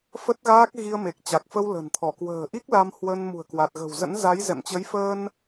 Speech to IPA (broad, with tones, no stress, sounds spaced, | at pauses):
f ə˦˥ t̚ ɣ aː˦˥ k̚ ɣ i˧ ə̯ m e˨˩ k̚ t͡ɕ a˨˩ k̚ f ə˧ w l ə̤˨˩ n t̪ʰ ɔ˧˩ k w ə̤ː˨˩ ʔ i˦˥ k̚ l a˧ m h w ə˧ n m ṳ˨˩ ə̯ k w a˨˩ t̚ ɣ ə̤˨˩ w z ə̰˧˥ n z a˨˦ j z ɛ̰˧˨ m t͡ɕ ə˨˦ j f əː˧ n